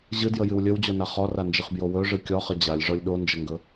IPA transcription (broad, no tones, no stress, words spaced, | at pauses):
ʑɨdjəjɨw lʲɵwd͡ʑona χɔrand͡ʒɨχbjo wɵʐɨ kʲɔχə d͡ʑalʲʐɔlʲ ɗond͡ʒəŋɡɵ